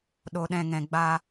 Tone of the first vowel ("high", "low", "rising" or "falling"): low